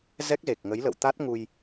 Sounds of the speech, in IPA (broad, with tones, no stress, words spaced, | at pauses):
zɛ˦˥k̚ze˨˩k̚ŋə˨˦j lə̰˧˨wt̪a˦˥t̚ŋu˧j